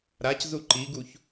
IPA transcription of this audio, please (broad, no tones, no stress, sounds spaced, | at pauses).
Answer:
ɾ a c z u ǃ i ɡ u ç